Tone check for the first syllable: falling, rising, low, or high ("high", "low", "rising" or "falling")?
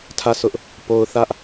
falling